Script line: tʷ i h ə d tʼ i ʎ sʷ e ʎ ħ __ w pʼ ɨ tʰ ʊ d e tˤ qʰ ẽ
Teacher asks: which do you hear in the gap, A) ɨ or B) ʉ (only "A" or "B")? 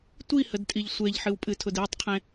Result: A